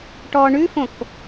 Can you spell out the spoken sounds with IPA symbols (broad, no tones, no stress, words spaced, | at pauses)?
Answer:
ʈɔ ɳʉfõk